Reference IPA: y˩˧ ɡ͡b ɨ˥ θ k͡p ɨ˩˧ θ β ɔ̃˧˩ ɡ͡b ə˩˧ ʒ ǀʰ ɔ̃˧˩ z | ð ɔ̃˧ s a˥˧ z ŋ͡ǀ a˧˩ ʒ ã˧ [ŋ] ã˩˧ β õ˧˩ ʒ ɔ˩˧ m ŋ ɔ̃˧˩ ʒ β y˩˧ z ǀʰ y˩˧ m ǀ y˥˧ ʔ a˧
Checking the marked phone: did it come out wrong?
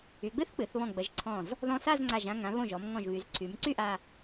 no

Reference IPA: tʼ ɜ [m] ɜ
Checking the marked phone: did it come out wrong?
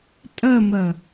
no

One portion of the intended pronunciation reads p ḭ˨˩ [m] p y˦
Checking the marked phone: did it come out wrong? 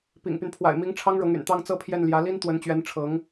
yes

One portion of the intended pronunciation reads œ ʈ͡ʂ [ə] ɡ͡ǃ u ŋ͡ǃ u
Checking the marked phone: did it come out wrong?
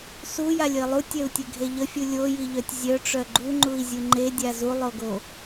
yes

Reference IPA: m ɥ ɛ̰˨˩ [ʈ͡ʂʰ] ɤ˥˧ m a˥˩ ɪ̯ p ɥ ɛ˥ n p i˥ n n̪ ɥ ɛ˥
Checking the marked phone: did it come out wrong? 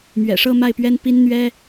yes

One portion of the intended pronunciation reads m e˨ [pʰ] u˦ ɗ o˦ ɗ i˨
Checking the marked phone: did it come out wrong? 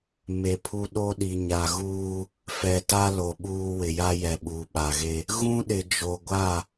no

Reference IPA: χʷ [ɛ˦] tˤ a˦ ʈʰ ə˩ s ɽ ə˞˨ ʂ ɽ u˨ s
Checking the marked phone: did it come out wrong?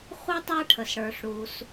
yes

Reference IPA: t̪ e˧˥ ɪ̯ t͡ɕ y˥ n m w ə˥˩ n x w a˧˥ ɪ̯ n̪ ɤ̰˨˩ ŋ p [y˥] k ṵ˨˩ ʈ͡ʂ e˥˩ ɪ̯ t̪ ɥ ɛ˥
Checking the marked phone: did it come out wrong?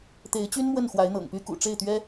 no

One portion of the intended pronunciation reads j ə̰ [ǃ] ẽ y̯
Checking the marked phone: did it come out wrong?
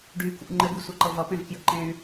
no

